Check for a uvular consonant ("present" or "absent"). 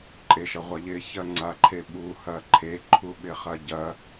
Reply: present